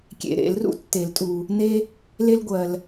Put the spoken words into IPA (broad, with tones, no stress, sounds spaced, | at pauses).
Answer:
kʲ ḛ˨ ɾ ḛ˨˩˦ l r ṵ˦ tː e˨˩˦ l tʼ u˨ | n e˦ | l e˦ l ɡʷ ɜ˨ l